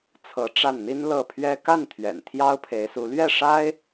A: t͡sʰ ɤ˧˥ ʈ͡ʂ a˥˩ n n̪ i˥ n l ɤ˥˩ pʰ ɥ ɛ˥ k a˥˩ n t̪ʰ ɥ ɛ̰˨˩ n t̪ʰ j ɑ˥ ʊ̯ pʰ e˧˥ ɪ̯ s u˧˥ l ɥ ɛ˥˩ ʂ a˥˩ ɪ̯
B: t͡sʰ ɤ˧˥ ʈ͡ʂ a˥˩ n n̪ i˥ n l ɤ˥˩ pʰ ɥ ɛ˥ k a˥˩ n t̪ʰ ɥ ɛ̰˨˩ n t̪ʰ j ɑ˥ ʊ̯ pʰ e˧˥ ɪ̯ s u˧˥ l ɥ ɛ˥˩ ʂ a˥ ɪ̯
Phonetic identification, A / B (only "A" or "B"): B